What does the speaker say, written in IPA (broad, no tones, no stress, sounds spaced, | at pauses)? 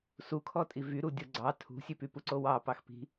s u kʰ ɔ tʼ i v y ɾ u dʲ o ɡ͡ǀ ɑ tʰ ṳ sʲ ʉ p y p u ǀ o w ɑ p ɑ x p i̤